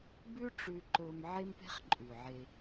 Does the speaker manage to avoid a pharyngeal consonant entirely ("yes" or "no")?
no